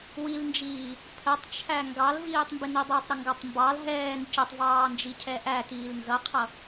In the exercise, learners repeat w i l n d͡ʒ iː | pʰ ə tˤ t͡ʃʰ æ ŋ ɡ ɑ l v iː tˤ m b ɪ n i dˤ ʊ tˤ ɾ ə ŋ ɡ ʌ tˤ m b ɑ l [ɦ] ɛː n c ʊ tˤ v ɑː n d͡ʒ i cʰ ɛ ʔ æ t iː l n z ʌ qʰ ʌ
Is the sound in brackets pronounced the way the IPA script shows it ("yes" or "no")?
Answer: yes